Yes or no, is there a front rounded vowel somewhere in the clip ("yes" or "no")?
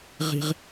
no